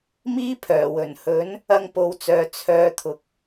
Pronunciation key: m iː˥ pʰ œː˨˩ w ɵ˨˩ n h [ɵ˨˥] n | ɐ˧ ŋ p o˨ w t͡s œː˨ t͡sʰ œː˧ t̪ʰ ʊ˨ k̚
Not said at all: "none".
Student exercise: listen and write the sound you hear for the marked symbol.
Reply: ɵ˨˥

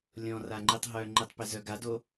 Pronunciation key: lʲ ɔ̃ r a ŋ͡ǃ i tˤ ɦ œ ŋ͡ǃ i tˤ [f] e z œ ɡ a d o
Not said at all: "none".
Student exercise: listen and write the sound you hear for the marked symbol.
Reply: p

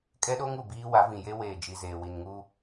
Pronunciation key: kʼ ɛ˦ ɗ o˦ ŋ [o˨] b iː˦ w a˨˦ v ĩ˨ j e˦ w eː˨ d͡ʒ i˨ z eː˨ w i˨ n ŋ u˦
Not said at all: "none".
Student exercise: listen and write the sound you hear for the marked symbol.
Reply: u˨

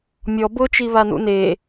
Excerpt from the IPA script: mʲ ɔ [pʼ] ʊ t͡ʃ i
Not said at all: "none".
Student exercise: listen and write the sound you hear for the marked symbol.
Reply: b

